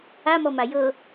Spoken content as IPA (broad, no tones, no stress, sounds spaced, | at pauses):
a m ɔ m a j ɤ